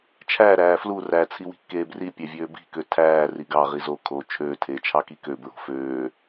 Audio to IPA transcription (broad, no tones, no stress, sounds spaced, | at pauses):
t͡ʃʰ æ ɾ æː f l u r æ t͡sʰ i w i̤ kː eː b r i pʲ æ vʲ øː b i̤ k ø tʰ æː r i ɡ ɑ ʁ i z o kʰ oː t͡ʃʰ øː tʰ eː t͡ʃʰ ɑ k i k ø b ɹ o̤ f øː